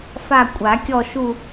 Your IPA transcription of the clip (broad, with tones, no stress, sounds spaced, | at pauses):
f a˦˨ kʷʼ a˨˩˦ kʲ ɔ˦˨ ʃ u˦˨